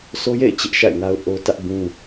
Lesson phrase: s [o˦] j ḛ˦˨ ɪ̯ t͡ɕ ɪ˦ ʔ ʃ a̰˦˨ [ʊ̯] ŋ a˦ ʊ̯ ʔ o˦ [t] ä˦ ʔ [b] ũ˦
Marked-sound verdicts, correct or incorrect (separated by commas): correct, incorrect, correct, correct